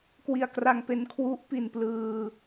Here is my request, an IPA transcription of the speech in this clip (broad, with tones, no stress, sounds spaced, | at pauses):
k w i˧ a̯ k r a˧ ŋ p e˧ n kʰ w u˦˥ ʔ p i˧ n p l ɯː˧